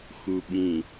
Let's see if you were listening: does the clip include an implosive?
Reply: yes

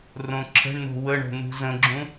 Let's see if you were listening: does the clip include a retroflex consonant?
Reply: yes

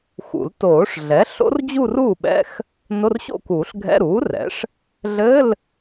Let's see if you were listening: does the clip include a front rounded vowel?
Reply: no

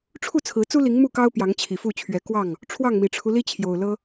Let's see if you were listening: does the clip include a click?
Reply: no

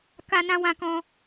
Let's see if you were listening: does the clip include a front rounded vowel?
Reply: no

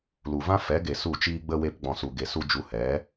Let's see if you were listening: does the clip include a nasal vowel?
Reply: yes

